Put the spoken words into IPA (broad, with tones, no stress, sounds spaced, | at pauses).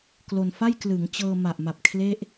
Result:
k l o˧ n f a˥˩ j k l ɯ˩˦ ŋ t͡ɕ ɤː˧ m a˨˩ ʔ m a˨˩ p̚ kʰ l e˥˩ ʔ